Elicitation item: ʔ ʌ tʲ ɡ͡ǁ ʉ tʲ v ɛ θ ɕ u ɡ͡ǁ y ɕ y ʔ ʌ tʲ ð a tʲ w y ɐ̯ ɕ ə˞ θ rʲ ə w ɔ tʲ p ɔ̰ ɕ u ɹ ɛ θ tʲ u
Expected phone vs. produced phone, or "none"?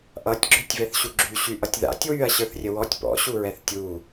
a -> a̰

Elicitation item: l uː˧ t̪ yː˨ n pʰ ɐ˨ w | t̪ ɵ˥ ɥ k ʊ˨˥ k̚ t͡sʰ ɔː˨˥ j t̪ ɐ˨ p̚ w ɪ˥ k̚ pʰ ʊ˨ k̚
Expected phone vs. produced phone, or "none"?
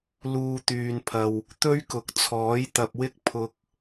none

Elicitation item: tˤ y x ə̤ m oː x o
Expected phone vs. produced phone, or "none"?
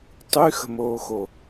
none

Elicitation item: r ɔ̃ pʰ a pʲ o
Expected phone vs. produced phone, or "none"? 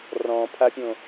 o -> õ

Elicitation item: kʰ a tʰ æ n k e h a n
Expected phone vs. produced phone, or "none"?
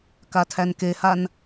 kʰ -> k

